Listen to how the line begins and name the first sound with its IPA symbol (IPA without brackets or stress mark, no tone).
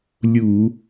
lʲ